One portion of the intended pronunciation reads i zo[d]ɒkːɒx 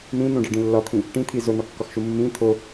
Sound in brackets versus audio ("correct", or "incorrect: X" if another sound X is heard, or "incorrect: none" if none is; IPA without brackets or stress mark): incorrect: n̪